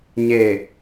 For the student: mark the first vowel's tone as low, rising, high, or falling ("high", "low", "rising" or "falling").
low